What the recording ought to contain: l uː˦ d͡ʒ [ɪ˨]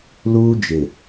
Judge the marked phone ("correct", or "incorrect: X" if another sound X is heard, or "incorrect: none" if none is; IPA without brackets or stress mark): correct